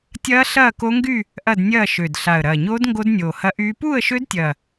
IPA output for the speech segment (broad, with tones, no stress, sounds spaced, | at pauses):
tʲ ɐː˦˥ ɬ ɐː˥˧ k o˦˥ ŋ ɡ y˥˧ | ʔ ɐ˥˧ d nʲ ɐː˥˧ ʃ ø˨˩ d ɬ a˨˩ ə̯ ɾ ɐː˨˩ ɲ oː˦˥ d ŋ ɡ o˦˥ d nʲ oː˨˩ h ɐ˦˥ ʔ yː˦˥ p uː˥˧ ə̯ ʃ ø˦˥ d tʲ ɐː˨˩